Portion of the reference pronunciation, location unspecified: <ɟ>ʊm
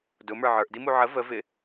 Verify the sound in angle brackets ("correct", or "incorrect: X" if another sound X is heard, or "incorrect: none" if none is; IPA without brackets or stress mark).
incorrect: d